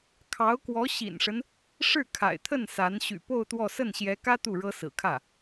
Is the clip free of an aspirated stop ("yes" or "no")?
no